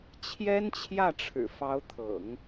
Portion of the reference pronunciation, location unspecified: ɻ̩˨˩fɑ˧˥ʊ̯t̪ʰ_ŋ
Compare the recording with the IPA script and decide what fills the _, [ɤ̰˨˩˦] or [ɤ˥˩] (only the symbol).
ɤ̰˨˩˦